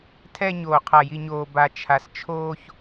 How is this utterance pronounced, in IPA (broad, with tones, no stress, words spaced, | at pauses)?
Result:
tʰɛ˨ ɲoː˨qʰa˨ ji˨ɲoː˨ ba˨ t͡ʃʰa˨st͡ʃʰoː˦ç